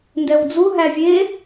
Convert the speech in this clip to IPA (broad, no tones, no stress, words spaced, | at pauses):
ndɛwd͡zu ɦævʲe